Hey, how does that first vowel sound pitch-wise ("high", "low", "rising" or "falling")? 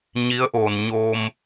rising